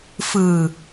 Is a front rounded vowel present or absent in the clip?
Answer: absent